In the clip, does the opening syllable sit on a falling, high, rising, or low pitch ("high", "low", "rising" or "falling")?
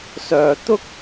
low